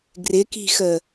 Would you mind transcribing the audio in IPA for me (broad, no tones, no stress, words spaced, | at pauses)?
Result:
ɡrɪki̤xə